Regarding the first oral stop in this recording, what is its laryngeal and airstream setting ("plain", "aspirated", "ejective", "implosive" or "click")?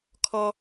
aspirated